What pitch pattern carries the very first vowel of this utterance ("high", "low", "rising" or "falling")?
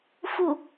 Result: falling